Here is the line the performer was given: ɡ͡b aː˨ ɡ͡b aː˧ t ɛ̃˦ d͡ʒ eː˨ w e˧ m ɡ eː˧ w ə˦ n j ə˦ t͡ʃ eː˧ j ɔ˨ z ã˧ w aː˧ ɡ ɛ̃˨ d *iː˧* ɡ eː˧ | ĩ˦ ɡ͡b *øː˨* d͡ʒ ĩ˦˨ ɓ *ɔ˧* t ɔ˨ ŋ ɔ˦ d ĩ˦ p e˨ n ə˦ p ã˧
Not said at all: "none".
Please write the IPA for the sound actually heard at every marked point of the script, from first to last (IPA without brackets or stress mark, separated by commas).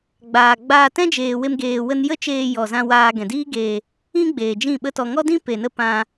iː˦, eː˨, ə˧